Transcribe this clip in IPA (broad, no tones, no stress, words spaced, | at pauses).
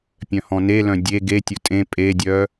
pʲœ̃hɔ̃nelœ̃ dʲe ɡetʲʊ tʼẽ pʼedʲœ